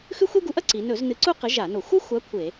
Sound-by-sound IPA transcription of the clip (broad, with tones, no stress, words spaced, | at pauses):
xʉ˥xʷe˥ɡu˨˥ʔɐ˥ ǀi˩˧ nɵ˧˩˧z nɨ˨˥ǀu˥ qɨ˨˥ʒa˧˩˧no˧˩˧ xʷɐ˥xʷa˨˥ kʷʰe˧˩˧